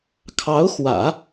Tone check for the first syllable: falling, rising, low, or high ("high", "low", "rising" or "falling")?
rising